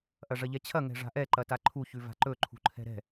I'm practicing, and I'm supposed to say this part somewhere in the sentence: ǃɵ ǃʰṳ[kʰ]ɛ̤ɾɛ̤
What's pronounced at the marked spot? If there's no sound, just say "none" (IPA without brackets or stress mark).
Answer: ǃʰ